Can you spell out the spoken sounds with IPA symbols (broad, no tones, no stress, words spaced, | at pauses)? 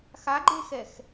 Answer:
xaɡ͡ǃexɛx